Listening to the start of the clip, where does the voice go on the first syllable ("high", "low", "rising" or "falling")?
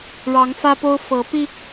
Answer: rising